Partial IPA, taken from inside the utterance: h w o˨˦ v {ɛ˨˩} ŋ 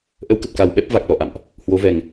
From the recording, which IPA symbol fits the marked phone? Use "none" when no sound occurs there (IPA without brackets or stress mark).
ɛ˨˩